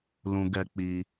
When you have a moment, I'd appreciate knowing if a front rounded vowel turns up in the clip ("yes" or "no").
no